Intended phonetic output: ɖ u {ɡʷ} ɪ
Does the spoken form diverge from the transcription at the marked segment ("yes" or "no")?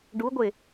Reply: no